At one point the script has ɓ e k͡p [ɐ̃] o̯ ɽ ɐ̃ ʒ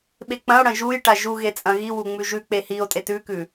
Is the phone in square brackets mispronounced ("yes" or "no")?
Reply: no